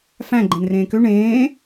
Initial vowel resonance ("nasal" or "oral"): nasal